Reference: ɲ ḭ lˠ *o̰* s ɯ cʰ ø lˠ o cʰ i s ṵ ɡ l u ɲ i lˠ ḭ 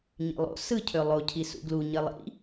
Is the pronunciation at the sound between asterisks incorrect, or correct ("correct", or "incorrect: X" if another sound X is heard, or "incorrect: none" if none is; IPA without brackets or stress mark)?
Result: correct